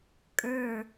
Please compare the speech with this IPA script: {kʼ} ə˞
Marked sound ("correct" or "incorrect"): correct